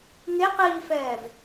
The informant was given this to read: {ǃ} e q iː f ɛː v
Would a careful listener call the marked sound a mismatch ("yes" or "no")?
yes